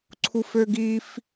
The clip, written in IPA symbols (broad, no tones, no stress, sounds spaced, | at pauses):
ǀʰ u f ø ɡ i f